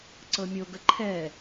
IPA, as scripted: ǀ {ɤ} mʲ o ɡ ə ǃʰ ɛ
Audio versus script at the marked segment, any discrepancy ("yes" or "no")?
no